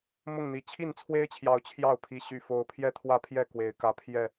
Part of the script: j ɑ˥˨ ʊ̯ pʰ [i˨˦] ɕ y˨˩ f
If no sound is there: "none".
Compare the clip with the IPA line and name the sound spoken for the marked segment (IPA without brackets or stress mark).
i˨˦